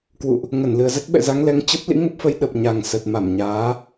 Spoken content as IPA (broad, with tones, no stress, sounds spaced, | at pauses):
k w ṵ˧˨ ʔ | ŋ ə˧˩ n l ɨ˨˩ ə̯ z ə˦˥ t̚ ɓ ɛ̰˧˨ z a˨˦ ŋ l ɛ˨˦ ŋ t͡ɕ ə˦˥ p̚ l ḭ˧˥ ŋ ə˦˥ p̚ f ə˨˦ j ɗ ə˨˩ p̚ ɲ a˨˩ ŋ s ə˨˩ t̚ m a˧˩ m ɲ aː˨˦